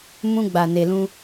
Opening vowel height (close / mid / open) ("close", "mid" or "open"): close